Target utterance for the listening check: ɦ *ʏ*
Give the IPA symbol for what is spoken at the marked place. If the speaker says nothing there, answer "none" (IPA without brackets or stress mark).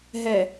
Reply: ɛ